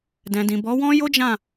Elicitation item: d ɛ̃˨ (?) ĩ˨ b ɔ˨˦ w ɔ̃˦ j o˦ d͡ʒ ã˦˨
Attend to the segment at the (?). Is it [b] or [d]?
d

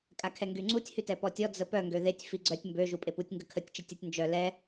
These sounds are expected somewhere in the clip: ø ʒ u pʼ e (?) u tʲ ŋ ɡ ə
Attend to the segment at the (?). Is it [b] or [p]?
p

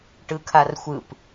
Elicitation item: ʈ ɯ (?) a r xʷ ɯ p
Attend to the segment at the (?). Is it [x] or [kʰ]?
kʰ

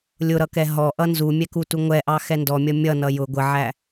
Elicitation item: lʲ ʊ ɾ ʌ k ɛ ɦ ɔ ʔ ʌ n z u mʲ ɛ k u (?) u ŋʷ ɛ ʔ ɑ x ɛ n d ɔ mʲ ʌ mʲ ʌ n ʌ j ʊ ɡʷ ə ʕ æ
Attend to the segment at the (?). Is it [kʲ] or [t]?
t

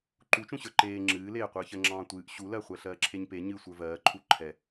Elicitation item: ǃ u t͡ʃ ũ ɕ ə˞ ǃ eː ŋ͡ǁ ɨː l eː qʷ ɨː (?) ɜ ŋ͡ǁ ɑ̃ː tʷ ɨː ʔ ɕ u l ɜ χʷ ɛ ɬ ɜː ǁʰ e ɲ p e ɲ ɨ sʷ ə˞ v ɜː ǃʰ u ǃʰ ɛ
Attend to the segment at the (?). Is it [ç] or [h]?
ç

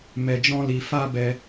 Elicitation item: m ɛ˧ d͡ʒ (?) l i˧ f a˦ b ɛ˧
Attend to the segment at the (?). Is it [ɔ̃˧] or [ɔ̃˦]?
ɔ̃˦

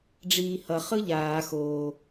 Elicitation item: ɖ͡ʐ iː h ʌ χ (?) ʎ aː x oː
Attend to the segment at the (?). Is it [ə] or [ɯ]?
ɯ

